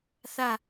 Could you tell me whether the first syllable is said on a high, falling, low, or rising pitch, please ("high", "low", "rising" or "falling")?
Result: falling